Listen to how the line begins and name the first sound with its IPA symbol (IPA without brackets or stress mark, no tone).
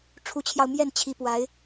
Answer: ʈ͡ʂʰ